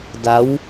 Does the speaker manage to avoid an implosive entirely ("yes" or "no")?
yes